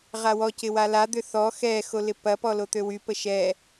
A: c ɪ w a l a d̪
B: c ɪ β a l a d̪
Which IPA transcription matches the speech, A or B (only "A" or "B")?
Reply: A